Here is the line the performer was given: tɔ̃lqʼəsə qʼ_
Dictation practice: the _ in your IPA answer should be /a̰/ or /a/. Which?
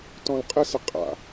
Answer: a̰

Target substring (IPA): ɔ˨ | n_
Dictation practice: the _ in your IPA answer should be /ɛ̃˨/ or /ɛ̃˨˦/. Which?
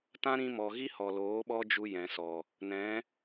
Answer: ɛ̃˨˦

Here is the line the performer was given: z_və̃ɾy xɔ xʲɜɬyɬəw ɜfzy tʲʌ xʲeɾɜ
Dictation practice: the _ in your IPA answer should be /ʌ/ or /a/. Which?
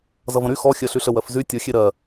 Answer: ʌ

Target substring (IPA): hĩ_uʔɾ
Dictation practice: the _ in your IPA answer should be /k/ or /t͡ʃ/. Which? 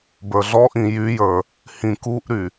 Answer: k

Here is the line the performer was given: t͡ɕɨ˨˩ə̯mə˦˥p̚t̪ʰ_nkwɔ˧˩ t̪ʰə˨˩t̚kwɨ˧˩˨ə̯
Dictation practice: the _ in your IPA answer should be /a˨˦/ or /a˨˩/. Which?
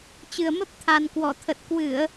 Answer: a˨˩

